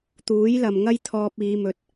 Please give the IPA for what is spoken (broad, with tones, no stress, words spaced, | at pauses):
t̪uː˨˥jlɐ˨mŋɐ˥j t̪ʰɔː˧p̚iː˨˧mɵ˨˥t̚